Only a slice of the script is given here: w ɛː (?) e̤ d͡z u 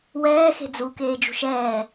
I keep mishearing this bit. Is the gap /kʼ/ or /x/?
x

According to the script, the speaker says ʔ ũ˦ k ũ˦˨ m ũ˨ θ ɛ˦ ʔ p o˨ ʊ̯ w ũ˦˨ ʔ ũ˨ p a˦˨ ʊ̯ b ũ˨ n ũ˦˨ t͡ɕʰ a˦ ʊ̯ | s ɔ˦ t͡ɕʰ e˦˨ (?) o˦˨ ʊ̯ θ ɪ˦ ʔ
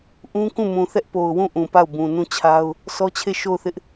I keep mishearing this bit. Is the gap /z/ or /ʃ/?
ʃ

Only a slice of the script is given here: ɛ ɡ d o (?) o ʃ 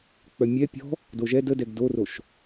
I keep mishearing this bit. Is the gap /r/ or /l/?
r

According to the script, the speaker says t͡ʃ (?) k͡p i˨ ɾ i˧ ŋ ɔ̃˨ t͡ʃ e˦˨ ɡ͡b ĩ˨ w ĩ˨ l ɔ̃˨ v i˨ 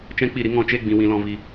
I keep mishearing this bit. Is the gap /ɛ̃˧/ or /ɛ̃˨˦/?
ɛ̃˧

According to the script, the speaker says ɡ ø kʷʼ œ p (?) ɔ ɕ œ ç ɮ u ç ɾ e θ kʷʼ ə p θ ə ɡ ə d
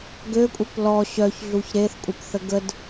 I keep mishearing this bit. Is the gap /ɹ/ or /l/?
l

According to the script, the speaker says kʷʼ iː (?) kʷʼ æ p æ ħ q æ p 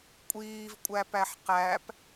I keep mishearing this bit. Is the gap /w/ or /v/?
v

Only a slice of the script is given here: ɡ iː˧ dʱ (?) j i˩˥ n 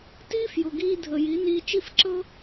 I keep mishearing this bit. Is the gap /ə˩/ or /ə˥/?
ə˩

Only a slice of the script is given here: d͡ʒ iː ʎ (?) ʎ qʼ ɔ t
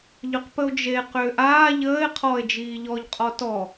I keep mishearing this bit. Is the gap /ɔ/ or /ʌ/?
ɔ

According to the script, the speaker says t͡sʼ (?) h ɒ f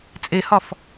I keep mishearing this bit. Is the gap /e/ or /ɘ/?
e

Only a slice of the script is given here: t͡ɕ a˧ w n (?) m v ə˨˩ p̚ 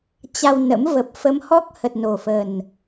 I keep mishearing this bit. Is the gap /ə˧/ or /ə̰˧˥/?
ə̰˧˥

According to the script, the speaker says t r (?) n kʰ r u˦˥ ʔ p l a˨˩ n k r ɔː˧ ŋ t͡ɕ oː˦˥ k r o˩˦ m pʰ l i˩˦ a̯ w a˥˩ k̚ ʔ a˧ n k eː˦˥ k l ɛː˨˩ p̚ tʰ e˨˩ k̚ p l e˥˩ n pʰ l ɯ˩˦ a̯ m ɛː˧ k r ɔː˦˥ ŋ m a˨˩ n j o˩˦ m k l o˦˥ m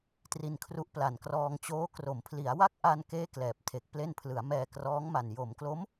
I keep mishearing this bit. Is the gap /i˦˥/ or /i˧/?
i˧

